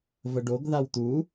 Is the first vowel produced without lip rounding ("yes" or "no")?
yes